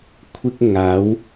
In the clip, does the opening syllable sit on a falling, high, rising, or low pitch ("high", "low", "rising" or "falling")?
high